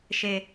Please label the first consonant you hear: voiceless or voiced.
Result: voiceless